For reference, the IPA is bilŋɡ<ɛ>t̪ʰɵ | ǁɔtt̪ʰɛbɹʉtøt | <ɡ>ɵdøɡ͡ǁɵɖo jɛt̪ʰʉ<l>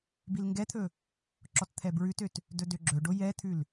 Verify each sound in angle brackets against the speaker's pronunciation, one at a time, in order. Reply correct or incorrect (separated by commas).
correct, incorrect, correct